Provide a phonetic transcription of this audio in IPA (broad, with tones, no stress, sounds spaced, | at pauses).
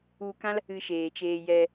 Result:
u˧ k ã˦ l | ɨ˧ ʃ eː˨ t͡ʃ eː˧ j ɛ˧